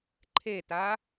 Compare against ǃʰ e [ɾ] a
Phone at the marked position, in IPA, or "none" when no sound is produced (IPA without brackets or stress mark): t